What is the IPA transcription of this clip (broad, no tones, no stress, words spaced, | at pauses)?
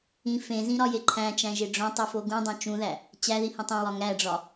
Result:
ĩ fẽzĩɾɒje ǃʰæ̃t͡ʃæ̃ʒe ɖ͡ʐõtˤifo ɡũdˤõ t͡ʃũðæ | t͡ɕæðihĩ tˤẽwɒ ŋæɖ͡ʐɒ